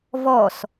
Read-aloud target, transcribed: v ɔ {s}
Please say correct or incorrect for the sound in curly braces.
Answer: correct